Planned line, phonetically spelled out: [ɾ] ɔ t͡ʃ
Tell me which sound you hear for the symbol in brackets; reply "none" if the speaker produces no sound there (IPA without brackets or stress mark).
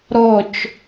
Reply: ɾ